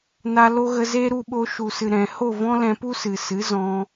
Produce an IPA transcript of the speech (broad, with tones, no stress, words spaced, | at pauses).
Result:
na˧lo˦ɣə˧ ze˦ɾu˧ɓo˧ ʃu˨sɨ˨ ɾɛ̃˨ ho˦˨vɔ̃˦ lɛ̃˧pu˦sɨ˨sɨ˨˦ zɔ̃˦